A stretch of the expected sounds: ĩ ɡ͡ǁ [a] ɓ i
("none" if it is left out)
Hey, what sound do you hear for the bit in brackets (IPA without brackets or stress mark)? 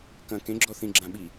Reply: ã